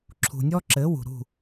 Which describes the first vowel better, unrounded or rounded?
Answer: rounded